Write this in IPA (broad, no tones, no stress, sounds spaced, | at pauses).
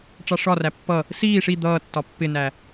ʈ͡ʂ ɑ ʂ ɒ r æ pː ʌ | s iː ʂ i d̪ ʌː tː ɒ pː ɪ n æ